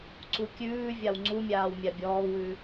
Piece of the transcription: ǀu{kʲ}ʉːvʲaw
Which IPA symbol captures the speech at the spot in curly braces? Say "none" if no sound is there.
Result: kʲ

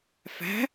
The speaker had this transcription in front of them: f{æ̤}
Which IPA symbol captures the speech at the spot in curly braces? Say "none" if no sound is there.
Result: æ̤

